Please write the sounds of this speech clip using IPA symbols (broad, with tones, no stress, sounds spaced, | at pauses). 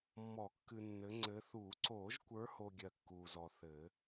mː ɔ˨˩˦ kː ɨ˨ nː ɘ˨˦ ŋ͡ǀ ɘ˨˦ θ uː˨˩˦ ǀ oː˨˩˦ ʒ kʷ ə˞˨˦ h o˨ ɡʲ ɜ˨ kː uː˨ z ɔ˨ θ ɘː˨˩˦